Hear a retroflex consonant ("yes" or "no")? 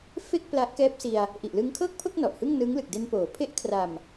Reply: no